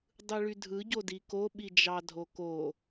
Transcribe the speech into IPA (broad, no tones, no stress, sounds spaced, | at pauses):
dˤ ɯ ɭ y dʱ ɯ ɟ o d i k o ɓ i d͡ʒ ɑ dʱ o k o